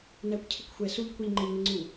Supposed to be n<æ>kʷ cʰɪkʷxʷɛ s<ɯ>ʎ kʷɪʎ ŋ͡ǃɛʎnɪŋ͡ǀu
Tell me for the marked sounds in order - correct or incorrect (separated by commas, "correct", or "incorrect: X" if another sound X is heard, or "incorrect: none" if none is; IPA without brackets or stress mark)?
correct, incorrect: u